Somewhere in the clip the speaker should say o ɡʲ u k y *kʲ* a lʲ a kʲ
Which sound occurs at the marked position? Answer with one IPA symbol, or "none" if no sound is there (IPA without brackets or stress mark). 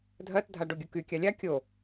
kʲ